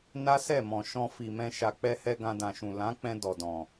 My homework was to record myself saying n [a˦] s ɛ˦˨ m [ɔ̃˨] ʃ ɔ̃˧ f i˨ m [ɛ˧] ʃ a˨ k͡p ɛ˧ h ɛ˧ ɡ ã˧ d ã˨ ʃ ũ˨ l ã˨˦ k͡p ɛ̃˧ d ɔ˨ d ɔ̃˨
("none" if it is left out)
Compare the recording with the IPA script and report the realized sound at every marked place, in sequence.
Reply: a˦, ɔ̃˨, ɛ̃˧

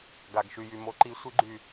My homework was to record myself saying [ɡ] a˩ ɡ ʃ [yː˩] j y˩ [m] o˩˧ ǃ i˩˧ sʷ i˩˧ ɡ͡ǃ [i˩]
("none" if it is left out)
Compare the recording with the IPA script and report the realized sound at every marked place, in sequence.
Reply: ɡ, y˩, m, y˩

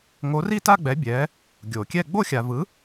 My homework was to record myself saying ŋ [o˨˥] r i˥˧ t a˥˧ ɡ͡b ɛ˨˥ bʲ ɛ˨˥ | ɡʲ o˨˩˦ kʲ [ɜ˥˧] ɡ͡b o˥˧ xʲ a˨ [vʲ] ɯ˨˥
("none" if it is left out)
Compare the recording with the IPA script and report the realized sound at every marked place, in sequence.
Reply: o˨˥, ɛ˥˧, v

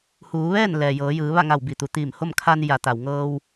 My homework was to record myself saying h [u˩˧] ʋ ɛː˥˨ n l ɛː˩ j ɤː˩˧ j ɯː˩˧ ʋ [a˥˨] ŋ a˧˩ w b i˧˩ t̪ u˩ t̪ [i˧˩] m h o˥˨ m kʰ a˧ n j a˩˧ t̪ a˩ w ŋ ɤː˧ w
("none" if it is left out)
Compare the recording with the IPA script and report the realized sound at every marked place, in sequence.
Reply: uː˩˧, a˥˨, iː˧˩

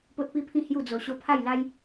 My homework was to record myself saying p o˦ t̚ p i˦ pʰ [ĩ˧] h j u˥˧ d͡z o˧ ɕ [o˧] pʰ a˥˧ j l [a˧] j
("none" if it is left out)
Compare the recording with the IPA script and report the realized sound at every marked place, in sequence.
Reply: ĩ˥˧, o˦, a˦

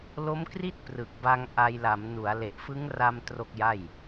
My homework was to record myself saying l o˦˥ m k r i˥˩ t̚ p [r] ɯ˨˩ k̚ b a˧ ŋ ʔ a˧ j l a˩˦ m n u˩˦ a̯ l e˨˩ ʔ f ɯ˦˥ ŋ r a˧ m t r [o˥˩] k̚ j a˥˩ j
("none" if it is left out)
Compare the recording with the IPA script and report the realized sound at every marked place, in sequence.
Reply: r, o˥˩

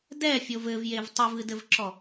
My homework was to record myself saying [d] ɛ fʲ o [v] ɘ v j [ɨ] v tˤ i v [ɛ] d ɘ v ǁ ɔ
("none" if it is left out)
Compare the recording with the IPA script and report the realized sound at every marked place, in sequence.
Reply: d, v, e, ɨ

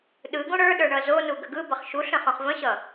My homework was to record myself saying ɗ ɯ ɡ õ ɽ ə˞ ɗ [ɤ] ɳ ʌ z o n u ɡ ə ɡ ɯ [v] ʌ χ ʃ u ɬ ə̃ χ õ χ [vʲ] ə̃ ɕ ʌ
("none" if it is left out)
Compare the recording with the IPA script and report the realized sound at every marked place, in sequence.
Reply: ə˞, b, v

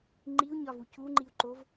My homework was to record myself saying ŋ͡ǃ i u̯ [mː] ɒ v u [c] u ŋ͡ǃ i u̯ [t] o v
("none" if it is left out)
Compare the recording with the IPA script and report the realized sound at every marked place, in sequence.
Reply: ɲ, c, ǃ

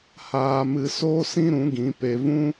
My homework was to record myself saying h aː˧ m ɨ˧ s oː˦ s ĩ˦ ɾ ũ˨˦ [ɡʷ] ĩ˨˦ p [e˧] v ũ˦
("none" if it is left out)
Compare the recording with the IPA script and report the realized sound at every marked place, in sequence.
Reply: ɡ, e˧

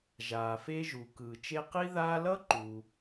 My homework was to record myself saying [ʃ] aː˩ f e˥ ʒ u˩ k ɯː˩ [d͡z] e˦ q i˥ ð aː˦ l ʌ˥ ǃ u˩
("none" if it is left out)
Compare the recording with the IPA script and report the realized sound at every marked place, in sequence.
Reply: ʒ, t͡ʃ

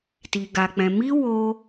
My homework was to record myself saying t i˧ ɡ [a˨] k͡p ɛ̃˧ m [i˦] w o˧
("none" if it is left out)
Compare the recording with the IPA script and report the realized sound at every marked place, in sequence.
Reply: a˧, i˦

